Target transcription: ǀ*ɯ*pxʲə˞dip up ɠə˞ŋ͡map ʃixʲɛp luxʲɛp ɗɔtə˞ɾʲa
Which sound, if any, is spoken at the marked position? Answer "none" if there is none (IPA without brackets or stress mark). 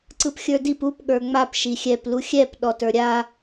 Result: ɯ